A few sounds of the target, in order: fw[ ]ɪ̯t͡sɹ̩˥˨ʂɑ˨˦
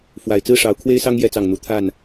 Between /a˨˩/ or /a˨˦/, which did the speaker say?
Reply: a˨˩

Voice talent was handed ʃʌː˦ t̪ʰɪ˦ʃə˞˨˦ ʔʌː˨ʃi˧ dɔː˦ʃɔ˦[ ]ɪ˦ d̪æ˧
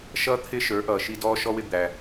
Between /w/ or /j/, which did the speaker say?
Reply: w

